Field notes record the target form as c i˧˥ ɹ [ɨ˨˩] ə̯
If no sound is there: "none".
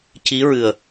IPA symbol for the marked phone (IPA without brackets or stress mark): ɨ˨˩